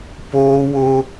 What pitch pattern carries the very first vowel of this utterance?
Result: high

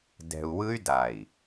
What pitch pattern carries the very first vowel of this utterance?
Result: low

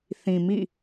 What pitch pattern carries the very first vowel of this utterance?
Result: low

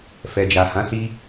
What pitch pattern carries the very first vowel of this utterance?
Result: low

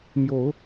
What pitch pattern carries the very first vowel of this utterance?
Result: rising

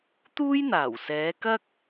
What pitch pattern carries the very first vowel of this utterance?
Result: high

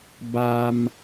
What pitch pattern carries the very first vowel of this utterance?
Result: high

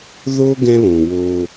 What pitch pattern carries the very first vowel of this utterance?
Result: high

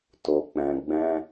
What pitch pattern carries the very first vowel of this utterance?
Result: low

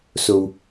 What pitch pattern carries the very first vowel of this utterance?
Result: low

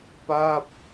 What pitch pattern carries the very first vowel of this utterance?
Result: falling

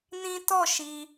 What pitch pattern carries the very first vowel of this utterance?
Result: high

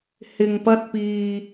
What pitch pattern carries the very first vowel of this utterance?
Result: low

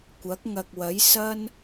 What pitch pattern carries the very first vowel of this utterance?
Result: rising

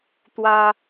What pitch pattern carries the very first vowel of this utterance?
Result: high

